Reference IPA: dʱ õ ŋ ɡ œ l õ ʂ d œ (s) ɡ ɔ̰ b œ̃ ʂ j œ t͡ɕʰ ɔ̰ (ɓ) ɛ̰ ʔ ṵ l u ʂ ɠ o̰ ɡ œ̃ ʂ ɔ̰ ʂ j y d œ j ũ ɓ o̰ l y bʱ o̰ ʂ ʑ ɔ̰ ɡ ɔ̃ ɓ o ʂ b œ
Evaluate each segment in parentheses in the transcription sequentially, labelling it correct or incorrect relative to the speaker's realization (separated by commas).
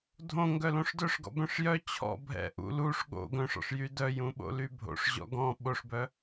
incorrect, incorrect